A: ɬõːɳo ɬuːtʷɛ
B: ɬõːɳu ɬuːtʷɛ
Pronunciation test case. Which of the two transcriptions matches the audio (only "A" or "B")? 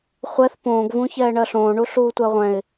B